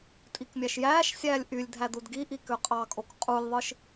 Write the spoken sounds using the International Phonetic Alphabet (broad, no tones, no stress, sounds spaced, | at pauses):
tʼ i k mʲ æ ʃ j æː ʃ sʲ æː lʲ ʔ y lʲ dʱ æ d u d ɡ i ʔ i k ø qʼ ɑ kʼ o k qʼ u lʲ ðˤ ɯ ʃ